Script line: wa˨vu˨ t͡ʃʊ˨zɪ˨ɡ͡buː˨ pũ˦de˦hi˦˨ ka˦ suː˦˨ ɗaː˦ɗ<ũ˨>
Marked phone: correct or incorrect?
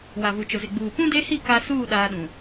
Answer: correct